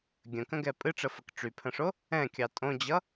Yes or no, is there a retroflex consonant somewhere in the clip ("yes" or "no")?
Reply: yes